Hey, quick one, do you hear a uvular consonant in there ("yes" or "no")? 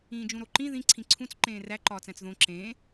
no